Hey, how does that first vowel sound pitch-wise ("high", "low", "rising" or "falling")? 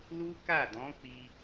high